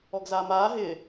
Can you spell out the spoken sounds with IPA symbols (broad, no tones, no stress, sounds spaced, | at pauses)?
ɔ ɡ z aː m aː ɦ ɪː